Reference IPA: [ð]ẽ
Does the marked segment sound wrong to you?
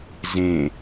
yes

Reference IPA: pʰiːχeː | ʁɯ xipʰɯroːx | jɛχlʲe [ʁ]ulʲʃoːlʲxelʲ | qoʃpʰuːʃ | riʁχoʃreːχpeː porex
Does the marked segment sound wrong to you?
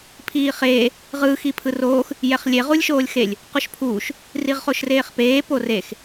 no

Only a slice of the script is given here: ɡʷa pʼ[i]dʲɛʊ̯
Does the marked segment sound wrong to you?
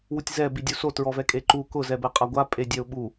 yes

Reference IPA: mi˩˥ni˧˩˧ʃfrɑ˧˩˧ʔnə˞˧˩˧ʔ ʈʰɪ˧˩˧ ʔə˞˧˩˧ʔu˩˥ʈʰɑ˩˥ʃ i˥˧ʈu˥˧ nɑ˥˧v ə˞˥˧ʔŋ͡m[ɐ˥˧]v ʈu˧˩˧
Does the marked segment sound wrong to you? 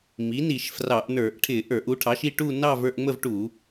yes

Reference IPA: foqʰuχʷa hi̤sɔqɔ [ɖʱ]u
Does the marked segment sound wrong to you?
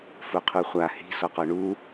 yes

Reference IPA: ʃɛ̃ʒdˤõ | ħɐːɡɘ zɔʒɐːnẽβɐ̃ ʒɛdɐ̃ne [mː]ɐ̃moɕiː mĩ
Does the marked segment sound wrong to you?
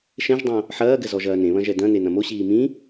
yes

